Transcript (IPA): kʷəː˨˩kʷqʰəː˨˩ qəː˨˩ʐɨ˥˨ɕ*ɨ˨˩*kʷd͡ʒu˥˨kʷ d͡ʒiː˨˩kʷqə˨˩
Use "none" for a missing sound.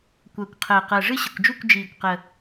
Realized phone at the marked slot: ə˨˩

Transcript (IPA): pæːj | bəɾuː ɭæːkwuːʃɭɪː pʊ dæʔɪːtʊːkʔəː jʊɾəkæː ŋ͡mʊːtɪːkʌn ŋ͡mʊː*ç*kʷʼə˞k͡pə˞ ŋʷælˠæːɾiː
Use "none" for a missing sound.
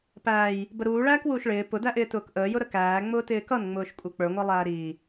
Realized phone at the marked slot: ʃ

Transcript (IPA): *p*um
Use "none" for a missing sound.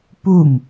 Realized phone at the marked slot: p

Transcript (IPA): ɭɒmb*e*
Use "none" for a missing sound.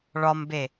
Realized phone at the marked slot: e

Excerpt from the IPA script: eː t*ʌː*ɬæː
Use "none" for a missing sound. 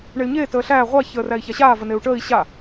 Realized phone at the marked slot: əː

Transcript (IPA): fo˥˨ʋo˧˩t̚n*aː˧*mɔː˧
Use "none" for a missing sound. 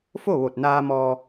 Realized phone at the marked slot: aː˧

